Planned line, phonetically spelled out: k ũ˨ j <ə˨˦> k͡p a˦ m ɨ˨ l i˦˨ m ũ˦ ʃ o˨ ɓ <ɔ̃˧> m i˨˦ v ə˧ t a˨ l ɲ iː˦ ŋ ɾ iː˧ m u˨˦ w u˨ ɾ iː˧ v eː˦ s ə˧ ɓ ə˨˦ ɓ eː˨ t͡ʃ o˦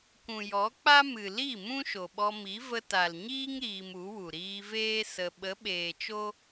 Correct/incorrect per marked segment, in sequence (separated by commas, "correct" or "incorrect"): incorrect, incorrect